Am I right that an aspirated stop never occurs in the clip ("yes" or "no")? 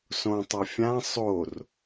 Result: yes